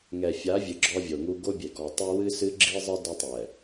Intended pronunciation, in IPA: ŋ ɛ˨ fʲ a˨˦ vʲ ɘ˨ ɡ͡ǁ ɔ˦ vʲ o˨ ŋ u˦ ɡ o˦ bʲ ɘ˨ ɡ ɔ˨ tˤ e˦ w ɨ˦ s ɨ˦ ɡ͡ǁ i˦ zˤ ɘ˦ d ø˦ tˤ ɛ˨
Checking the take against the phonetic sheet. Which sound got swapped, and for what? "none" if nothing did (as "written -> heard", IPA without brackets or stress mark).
ø˦ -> ɘ˦